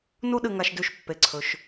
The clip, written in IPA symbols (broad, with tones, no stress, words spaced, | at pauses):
nu˦ɗɨ˨ŋa˨ʃ dʉ˨ʃpːe˩ǀʰɵ˩ʃ